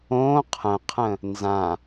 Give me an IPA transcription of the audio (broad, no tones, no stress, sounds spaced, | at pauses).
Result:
õ qʰ ə̃ qʰ ə̃ | n z ã